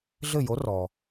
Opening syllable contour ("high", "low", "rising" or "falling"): falling